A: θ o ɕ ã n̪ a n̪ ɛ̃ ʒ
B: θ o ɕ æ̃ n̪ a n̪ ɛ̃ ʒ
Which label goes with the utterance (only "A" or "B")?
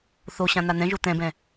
A